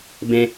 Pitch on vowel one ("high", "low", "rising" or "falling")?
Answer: high